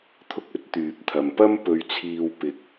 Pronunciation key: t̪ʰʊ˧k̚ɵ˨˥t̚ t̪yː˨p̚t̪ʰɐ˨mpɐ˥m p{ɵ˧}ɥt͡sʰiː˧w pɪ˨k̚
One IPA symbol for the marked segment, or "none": ɵ˧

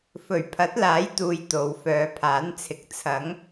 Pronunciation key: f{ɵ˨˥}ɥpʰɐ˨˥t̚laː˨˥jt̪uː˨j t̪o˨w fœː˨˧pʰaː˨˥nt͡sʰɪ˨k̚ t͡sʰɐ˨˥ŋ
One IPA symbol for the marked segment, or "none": ɵ˨˩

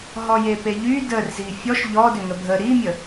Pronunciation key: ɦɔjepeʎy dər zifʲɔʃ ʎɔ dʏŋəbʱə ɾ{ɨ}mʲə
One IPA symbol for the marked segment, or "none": i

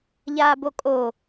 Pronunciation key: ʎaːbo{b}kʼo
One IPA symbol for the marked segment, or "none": none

